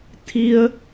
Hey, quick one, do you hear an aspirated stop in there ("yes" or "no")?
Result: yes